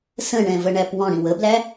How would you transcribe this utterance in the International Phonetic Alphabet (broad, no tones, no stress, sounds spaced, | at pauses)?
s ə̃ ɳ ɛ̃ v ə ɳ æ p w ɔ̃ ɽ ĩ w ə b l æ